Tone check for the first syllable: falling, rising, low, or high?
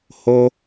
high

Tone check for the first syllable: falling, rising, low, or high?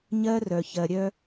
high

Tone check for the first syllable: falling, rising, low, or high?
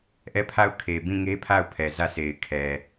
falling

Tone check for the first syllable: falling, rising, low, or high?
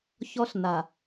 high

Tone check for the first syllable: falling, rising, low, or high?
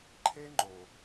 high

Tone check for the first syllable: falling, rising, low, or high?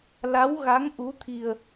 rising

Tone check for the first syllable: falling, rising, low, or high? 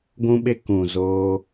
high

